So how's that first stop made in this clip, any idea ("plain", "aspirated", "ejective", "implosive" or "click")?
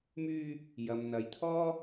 aspirated